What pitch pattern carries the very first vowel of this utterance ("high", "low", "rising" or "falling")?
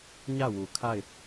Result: falling